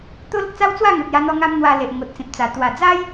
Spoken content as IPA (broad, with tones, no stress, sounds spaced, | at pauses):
t̪ o˦ l ə˦ k̚ t͡s a˦ w t͡s w a˥˧ ŋ u˨ t̚ j a˧ n̪ ɔ˧ ŋ a˧ m n̪ w a˧ l e˨ ʔ ŋ o˨ t̚ t͡s ĩ˨ p̚ t͡s a˨˩ t̪ w a˨˩ d͡z a˦ j